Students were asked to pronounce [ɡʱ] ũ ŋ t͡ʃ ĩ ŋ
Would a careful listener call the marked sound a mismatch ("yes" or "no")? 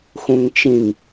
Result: yes